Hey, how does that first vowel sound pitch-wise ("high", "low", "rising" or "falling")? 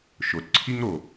low